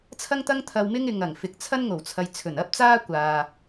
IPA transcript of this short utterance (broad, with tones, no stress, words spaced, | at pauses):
t͡sʰɐ˥ŋt̪ɐ˥ŋ t̪ʰɐ˧wmɪ˥ŋ ɪ˨ŋ ɐ˨˩ŋfɪ˨k̚ t͡sʰɐ˥nŋo˨˩wt͡sʰɐ˨j t͡sʰɵ˨˩nɐ˥p̚ t͡saː˥kʷaː˨